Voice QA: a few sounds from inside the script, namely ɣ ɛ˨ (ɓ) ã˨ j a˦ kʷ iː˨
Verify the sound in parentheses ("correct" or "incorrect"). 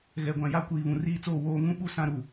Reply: incorrect